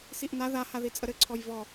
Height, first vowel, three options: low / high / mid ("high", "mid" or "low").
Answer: high